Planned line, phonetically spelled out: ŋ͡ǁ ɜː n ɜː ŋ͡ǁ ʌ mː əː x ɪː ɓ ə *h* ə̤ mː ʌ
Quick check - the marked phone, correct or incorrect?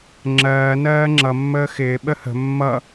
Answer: correct